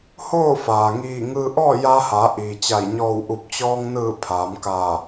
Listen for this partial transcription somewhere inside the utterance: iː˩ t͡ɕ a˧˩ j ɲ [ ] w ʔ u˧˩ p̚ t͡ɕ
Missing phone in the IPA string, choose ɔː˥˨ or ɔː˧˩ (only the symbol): ɔː˧˩